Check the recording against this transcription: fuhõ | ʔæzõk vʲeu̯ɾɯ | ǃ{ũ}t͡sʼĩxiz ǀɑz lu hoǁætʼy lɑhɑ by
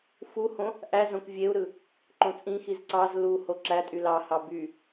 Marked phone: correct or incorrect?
incorrect: õ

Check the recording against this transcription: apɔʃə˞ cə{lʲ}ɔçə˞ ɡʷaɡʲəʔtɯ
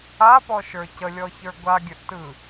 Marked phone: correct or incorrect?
correct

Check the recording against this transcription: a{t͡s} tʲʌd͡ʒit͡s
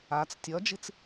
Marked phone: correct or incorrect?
correct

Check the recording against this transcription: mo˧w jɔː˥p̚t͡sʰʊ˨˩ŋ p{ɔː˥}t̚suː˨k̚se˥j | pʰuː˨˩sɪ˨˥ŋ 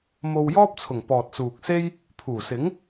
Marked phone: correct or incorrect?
incorrect: ɔː˨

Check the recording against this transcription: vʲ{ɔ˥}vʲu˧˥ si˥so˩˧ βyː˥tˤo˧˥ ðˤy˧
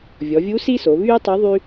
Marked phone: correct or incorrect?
incorrect: ɔ˩˧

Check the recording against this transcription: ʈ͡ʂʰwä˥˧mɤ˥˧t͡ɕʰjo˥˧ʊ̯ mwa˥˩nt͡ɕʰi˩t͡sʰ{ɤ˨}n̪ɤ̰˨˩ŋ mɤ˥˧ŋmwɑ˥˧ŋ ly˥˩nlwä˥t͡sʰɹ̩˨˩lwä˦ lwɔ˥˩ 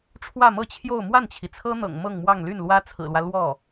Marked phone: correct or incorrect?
incorrect: ɤ˥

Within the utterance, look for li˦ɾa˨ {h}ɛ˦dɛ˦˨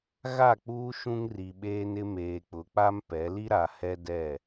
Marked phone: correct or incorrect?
correct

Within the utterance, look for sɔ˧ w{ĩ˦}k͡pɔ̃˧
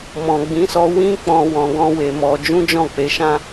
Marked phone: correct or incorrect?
correct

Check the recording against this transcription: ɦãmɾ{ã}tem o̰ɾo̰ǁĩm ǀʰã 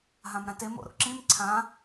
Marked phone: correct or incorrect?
correct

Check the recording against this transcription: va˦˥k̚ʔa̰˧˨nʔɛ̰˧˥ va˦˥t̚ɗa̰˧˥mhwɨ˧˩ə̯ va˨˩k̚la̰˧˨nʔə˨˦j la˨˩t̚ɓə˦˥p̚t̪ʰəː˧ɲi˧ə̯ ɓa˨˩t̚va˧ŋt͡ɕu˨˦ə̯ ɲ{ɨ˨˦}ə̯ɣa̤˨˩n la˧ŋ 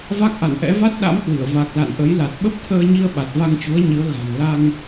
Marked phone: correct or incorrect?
correct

